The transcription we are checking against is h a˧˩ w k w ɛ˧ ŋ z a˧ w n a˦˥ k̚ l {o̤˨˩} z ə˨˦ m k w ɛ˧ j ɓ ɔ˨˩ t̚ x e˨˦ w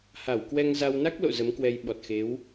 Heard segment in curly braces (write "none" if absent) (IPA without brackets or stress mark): o̰˧˨